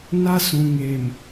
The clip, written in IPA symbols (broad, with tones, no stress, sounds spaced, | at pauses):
n a˦ s ũ˨ ŋ eː˨ m